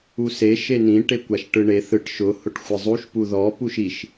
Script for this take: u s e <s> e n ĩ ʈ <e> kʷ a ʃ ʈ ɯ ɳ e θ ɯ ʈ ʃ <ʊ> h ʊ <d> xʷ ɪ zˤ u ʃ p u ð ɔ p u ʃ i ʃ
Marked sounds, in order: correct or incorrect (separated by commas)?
incorrect, correct, correct, incorrect